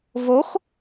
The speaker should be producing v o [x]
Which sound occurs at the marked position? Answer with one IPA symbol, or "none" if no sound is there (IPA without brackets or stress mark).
x